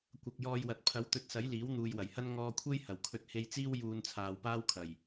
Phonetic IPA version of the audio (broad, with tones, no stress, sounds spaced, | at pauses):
kʷ ɐ˨ k̚ j ɔː˧ j w ɐ˨ t̚ pʰ ɐ˨˥ w t̪ ɵ˨ t̚ s ɐ˨˥ j l iː˨˥ w n̪ uː˨ j w ɐ˨˩ j h ɐ˥ n ŋ ɔː˧ kʷʰ e˥ j h ɐ˨˩ w kʰ ɵ˧ t̚ h e˧ j t͡s iː˥ w j uː˧ n t͡sʰ aː˨ w p aː˥ w kʰ ɐ˨˩ j